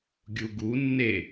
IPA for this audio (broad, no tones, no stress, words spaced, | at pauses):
ɡʲuɡu nːe